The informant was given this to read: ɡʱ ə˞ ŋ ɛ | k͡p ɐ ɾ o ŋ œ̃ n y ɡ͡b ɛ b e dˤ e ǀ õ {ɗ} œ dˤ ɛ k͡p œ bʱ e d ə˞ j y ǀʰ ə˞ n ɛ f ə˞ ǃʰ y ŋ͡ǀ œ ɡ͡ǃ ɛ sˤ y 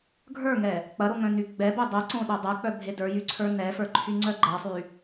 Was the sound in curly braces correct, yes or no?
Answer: yes